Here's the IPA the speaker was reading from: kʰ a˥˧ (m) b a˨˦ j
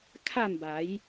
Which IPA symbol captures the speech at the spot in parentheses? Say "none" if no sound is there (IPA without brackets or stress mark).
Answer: m